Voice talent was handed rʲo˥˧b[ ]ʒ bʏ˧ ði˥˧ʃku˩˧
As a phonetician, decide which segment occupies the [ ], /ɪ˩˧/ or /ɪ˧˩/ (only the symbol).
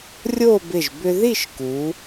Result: ɪ˧˩